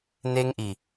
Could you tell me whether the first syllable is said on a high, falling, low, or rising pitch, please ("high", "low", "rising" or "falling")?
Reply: high